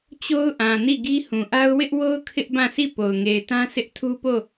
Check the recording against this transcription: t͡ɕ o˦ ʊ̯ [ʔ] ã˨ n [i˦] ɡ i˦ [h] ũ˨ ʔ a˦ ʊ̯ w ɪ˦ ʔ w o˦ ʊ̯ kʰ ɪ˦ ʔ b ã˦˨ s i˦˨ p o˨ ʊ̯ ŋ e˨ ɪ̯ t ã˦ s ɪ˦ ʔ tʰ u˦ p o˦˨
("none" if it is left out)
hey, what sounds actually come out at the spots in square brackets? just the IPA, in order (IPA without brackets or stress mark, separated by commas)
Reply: ʔ, i˦˨, h